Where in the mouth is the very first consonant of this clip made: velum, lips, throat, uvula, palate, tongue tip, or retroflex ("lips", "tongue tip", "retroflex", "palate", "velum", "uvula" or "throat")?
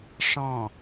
retroflex